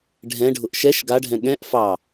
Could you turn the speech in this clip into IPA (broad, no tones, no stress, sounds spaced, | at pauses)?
ɖʱ ɛ̃ ɖʱ ʊ ʔ ʃ ɛ ʃ ɡ a ɖʱ ɛ̃ ɠ ɛ̃ ʔ f ɑ